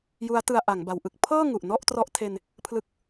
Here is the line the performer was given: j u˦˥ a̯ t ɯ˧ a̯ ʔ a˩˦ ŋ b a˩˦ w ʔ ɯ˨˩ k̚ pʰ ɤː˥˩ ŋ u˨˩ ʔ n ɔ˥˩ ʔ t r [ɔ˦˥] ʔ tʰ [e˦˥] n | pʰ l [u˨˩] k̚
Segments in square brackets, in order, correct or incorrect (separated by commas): correct, incorrect, incorrect